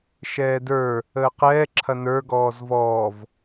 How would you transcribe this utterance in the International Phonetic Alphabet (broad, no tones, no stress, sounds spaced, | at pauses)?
ʃ ɛː d ə˞ | əː q ɛː ǁʰ ɐ n ə˞ ɡ ɔː z v ɔː v